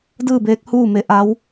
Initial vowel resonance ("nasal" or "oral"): oral